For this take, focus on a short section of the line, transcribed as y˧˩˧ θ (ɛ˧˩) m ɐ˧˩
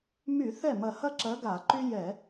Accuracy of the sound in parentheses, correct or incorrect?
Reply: incorrect